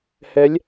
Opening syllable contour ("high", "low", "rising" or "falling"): rising